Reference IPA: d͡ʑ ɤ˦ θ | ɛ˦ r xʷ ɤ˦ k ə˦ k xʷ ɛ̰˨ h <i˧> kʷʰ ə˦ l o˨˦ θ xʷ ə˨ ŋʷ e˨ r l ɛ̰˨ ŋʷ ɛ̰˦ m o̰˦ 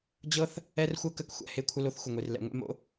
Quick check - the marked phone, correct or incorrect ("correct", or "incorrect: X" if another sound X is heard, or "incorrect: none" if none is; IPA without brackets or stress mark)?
incorrect: e˧